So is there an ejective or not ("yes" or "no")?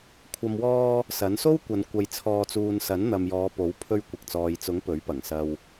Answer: no